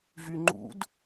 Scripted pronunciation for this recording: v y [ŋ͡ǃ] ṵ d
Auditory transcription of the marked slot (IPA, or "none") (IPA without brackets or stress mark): ŋ͡ǃ